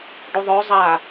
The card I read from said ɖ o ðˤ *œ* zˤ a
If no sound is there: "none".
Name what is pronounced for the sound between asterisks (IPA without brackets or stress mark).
œ